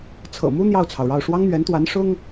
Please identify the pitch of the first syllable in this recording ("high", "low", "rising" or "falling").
low